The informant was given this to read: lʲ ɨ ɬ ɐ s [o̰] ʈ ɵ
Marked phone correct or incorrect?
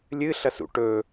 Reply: incorrect: ṵ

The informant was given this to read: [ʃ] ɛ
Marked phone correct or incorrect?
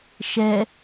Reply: correct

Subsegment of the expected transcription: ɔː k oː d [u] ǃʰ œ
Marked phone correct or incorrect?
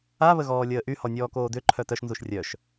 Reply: incorrect: ʏ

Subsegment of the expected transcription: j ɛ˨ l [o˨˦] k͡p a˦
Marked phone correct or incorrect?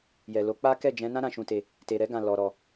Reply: correct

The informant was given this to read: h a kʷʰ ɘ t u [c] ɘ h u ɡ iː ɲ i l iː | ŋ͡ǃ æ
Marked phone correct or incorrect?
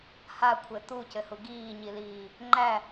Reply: correct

